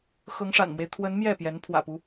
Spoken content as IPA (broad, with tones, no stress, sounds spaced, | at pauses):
x ɤ˧˥ ŋ ʂ a̰˨˩ n m w e˦ ɪ̯ t̪ʰ w ə˧˥ n m j ɛ˥˩ p j ɛ˧˥ n pʰ w ä̰˨˩ p u˦